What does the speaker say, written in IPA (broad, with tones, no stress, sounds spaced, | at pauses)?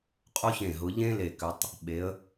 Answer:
qʼ o˥ ç ẽ˧˩ ɦ ʊ˩˧ ʎ ẽ˥ l e˧˩ k ʏ˩˧ tˤ | ɓ e˩˧ ə̯